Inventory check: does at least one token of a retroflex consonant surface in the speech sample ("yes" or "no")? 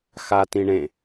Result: yes